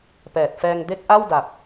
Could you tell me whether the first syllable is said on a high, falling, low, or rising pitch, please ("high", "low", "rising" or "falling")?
low